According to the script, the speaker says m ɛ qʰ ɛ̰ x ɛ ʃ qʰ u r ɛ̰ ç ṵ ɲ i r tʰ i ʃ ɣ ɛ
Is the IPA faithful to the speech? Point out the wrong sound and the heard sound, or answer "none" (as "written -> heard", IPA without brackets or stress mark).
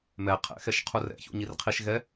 tʰ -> qʰ